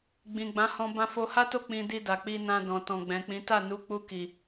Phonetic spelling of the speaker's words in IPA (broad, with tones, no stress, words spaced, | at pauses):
ɡ͡bĩ˨ ɡ͡bã˨˦hɔ̃˧ bã˧fo˧ha˦to˦˨ k͡pĩ˧ di˧ da˨k͡pi˧nã˧ dɔ̃˨tɔ̃˨ɡ͡bɛ̃˨k͡pĩ˨˦ ta˦˨nu˨˦k͡pu˧ki˨